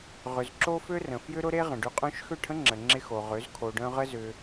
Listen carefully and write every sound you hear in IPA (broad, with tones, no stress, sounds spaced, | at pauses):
ʁ ʏ˨ z ǁ o˦ f ø˦ r ə̃˨ f j ʏ˦ ɾ ʊ˦ ɾ e˦ ʁ ə̃˨ ɖ y˧ qʼ œ̃˦ ʃ x ø˦˨ ʈʰ ə̃˦ ŋ͡ǁ ə˨ ŋ͡ǁ ɪ˧ x o˨ ʁ ø˨˦ z kʰ o˧ ɖ œ̃˦ ʁ ə˦ z ʏ˧